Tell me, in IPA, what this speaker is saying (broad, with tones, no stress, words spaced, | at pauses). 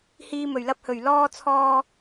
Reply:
hiː˧mɵ˨˩ɥlɐ˧p̚hɵ˨˩ɥ lɔː˧t͡sʰɔː˧